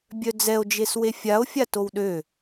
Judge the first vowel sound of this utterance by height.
mid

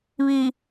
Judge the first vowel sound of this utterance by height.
high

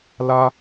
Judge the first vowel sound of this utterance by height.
low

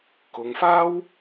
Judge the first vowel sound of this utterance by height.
high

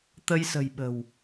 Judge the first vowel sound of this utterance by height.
mid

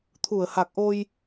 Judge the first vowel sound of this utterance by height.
high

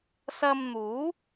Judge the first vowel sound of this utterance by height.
low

